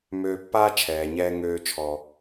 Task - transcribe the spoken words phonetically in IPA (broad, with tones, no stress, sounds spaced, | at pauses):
m øː˧ pː aː˥ t͡ʃʰ ɛː˩ ɲ ɛː˧ ŋ øː˧ t͡ʃʰ ɔ˩